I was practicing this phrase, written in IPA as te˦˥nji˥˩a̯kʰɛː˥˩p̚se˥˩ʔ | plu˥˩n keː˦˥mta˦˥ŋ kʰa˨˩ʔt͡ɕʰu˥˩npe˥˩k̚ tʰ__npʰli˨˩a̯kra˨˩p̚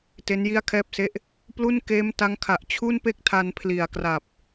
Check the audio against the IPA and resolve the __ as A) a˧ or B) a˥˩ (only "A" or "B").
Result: A